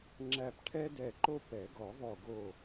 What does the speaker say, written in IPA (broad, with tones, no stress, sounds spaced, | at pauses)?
ŋ͡ǁ æ˧˩ p ʈʰ ɛ˦ d ɛ˧˩ ǃ o˦ p ɛ˨˩˦ ɡ ɔ˨˩˦ ðˤ o˧˩ ɡ o˧˩